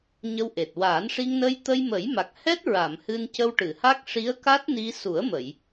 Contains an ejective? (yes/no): no